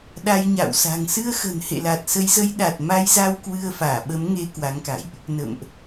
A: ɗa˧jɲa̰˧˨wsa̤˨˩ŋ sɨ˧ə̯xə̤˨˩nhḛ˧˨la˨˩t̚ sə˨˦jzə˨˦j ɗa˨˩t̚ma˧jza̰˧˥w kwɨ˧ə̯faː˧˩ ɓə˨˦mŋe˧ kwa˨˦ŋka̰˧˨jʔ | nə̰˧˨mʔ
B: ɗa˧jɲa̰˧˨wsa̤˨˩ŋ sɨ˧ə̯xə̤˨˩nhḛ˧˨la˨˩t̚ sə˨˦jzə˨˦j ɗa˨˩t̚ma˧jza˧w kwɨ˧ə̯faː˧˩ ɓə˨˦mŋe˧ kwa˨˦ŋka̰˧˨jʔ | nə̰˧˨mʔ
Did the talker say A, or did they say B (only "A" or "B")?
B